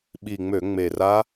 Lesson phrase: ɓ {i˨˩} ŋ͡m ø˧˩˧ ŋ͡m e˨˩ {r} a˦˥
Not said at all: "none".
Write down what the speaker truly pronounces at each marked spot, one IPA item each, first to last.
i˨˩, r

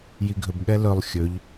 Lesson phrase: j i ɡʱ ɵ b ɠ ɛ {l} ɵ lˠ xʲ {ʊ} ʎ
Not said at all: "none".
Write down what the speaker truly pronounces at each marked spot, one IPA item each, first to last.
l, ɵ

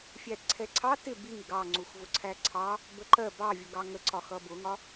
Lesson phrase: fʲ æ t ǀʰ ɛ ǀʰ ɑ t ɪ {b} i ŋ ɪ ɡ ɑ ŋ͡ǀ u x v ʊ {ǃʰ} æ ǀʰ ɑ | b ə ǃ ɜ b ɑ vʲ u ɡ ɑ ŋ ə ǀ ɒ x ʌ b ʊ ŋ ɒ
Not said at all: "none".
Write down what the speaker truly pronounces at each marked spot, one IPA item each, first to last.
b, ǀʰ

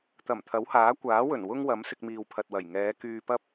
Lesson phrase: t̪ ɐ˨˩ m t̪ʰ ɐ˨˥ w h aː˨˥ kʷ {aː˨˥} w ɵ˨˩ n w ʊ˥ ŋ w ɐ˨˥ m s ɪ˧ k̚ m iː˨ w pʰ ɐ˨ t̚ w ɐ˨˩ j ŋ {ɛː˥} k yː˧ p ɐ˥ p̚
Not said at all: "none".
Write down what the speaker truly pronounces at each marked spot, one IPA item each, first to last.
aː˨˥, ɛː˨˧

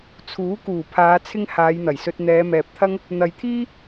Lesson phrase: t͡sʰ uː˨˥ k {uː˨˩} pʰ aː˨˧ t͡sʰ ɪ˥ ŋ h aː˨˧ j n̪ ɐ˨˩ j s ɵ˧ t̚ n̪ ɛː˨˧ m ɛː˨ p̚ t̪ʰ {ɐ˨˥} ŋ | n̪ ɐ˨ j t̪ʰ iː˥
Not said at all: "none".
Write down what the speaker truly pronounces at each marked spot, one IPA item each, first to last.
uː˨˩, ɐ˥

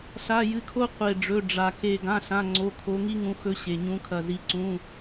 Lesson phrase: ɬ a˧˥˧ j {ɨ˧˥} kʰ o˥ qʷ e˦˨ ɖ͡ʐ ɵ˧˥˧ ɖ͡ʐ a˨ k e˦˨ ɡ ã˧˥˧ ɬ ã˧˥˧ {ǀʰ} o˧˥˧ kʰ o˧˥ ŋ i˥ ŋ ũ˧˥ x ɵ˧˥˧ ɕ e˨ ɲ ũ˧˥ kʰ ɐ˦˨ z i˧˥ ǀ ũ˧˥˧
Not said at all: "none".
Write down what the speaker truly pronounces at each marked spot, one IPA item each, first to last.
ɨ˧˥, ŋ͡ǀ

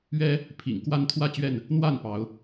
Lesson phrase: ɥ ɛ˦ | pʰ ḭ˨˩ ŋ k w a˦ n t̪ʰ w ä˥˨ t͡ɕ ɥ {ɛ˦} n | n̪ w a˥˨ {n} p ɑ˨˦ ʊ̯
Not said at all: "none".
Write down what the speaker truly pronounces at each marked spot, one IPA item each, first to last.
ɛ˥˨, n

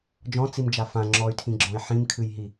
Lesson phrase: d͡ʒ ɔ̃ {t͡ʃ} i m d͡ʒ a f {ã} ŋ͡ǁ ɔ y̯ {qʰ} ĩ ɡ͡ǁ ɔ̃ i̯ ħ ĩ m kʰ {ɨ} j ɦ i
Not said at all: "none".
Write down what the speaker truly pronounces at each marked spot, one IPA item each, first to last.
t͡s, ã, tʰ, ɨ

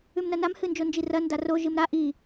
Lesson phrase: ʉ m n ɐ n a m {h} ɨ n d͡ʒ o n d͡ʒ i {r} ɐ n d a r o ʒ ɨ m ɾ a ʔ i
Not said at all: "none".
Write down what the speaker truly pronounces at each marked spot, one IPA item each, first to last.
h, r

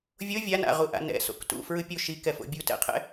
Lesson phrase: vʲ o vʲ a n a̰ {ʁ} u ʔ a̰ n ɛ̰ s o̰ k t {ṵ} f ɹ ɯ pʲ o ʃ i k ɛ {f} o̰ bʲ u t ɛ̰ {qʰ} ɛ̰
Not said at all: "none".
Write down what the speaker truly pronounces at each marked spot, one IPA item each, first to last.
ʁ, ṵ, f, qʰ

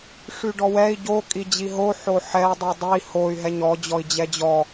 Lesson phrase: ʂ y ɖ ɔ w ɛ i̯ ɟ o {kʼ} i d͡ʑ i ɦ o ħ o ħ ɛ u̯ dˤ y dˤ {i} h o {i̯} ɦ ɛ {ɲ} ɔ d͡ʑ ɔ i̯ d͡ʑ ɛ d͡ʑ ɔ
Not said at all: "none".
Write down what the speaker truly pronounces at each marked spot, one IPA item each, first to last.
kʼ, i, y̯, ɲ

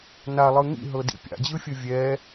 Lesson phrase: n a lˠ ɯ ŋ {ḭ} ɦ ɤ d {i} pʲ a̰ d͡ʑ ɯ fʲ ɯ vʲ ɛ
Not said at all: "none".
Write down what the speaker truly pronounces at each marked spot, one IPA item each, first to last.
ḭ, ḭ

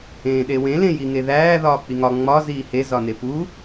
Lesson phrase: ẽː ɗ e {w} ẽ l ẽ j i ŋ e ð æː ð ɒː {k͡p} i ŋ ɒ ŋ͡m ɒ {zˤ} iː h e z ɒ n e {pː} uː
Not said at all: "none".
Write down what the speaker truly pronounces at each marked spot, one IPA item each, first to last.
w, k͡p, z, p

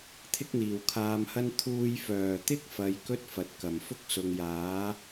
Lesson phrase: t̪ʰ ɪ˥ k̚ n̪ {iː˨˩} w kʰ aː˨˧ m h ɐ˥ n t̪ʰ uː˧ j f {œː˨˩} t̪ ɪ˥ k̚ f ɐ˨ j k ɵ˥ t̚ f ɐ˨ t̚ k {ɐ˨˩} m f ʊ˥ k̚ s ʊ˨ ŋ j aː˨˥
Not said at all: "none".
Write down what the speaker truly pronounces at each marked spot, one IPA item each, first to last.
iː˨˩, œː˨˩, ɐ˨˩

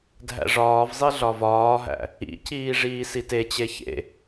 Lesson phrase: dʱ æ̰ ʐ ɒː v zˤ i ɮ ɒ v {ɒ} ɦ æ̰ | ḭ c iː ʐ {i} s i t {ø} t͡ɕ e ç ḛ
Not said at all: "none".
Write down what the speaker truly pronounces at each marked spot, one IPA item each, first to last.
ɒː, iː, e

